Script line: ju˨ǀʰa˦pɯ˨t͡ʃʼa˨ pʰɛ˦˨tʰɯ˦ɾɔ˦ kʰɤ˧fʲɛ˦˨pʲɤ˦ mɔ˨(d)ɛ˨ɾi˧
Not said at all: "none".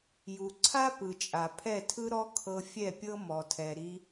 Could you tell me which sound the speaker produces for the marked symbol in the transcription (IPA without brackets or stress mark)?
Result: tʰ